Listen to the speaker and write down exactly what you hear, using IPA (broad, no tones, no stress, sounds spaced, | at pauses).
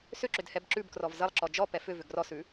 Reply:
s ʏ ǁ ʏ d h ɛ b ǁ ʉ b k r ɔ v z ə lˠ ǁ ɔ d͡ʒ ɔ p ɛ f ʏ v ʏ ɡ r ɔ s ʉ